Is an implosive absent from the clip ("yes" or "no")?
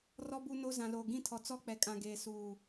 yes